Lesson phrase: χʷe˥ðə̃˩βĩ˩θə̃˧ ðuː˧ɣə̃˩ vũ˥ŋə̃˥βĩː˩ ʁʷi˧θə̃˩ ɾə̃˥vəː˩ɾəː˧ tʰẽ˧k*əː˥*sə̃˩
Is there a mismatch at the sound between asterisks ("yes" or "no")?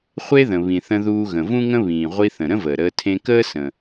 no